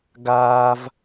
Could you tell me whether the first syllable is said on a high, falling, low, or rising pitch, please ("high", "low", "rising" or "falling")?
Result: high